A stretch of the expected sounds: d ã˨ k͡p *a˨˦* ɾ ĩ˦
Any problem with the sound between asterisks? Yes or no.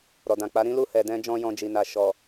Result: no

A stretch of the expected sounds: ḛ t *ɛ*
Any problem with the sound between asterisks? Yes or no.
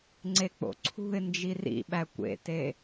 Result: yes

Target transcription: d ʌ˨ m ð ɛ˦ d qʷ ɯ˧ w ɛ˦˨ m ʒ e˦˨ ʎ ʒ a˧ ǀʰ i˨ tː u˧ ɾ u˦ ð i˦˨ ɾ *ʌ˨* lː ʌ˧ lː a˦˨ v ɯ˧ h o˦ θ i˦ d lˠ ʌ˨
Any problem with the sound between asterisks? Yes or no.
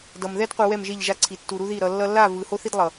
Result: no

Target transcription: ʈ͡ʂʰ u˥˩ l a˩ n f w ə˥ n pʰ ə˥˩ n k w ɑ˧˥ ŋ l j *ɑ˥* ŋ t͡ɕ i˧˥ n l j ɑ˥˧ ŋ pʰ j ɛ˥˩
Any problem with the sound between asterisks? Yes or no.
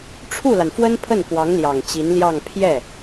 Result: yes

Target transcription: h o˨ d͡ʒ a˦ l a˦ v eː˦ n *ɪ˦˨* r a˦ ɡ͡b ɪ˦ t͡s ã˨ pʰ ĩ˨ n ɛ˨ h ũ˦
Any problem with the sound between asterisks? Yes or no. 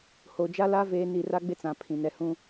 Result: yes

